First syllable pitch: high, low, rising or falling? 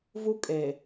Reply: high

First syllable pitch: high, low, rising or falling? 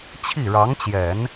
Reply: falling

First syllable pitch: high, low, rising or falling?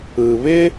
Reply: low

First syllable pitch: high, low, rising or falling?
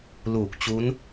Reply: low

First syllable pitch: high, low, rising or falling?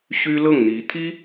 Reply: high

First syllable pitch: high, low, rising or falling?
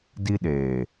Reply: high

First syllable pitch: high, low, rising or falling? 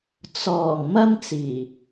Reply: low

